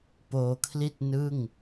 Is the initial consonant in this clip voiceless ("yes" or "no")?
yes